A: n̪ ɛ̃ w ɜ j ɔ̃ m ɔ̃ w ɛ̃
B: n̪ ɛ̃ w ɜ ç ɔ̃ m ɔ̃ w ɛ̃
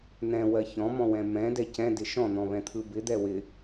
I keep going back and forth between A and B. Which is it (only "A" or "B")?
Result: B